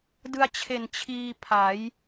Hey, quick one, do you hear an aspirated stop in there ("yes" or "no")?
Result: yes